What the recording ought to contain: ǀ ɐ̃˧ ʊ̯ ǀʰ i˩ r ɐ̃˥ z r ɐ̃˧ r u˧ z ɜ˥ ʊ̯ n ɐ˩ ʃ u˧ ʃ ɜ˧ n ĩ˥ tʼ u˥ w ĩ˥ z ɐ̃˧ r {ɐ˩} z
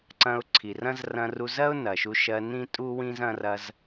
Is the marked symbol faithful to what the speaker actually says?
no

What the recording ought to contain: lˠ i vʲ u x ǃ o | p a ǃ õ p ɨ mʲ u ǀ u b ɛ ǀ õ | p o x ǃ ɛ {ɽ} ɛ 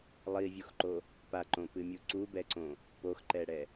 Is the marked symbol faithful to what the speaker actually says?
yes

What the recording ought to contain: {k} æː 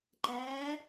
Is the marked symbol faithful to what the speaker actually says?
no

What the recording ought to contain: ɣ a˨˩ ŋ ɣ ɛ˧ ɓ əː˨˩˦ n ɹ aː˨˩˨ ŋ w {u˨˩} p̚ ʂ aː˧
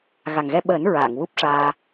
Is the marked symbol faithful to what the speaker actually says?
no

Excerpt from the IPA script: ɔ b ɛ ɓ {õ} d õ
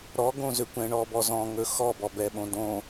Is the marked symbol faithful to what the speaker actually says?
yes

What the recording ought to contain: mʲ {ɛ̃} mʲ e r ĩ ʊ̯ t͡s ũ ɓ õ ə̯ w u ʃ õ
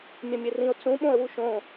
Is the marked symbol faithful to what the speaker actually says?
yes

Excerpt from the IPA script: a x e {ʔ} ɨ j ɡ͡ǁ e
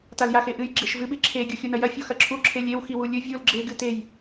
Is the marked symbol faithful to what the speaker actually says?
yes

